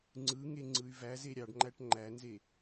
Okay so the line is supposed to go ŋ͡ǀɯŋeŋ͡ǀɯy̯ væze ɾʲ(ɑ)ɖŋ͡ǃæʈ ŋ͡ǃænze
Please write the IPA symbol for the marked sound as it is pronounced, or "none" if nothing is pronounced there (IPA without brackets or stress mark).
ɑ